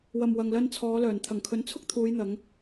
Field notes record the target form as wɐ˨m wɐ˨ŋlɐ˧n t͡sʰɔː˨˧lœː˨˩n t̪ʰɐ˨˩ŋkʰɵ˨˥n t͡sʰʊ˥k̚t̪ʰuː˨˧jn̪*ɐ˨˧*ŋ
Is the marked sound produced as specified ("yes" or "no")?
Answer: yes